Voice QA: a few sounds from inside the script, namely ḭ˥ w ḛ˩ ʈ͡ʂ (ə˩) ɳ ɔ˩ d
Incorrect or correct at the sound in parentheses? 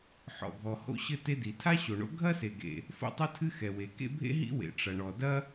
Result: incorrect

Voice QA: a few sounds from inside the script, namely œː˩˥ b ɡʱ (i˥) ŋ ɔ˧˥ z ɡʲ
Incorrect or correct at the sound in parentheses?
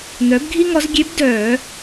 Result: correct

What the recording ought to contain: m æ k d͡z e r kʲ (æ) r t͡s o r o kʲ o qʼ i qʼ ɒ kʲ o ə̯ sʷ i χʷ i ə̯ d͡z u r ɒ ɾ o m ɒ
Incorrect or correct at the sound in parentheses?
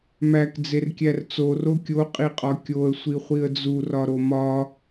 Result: correct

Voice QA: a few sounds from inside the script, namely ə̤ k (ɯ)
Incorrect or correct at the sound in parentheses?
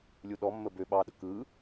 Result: correct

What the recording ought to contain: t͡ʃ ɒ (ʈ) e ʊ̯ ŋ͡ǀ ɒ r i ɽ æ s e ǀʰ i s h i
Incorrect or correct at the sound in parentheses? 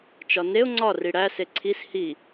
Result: incorrect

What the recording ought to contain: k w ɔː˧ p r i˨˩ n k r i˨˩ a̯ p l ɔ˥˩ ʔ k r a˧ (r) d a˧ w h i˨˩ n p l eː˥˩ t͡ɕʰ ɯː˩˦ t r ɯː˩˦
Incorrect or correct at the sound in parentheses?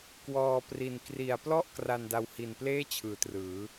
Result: incorrect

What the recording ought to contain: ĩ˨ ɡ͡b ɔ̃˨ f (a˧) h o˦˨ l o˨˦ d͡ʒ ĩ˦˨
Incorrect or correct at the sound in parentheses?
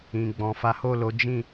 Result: incorrect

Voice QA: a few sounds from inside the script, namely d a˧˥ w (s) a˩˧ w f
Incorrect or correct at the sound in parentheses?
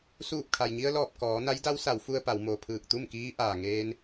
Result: correct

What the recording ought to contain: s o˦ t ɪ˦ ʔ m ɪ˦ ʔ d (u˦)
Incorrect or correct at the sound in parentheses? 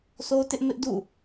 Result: incorrect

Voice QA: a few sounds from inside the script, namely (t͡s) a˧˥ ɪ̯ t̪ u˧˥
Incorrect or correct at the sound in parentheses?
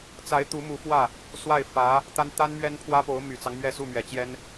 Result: correct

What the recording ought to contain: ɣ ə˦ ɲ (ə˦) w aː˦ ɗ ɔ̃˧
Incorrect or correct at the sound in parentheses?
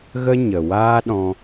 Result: incorrect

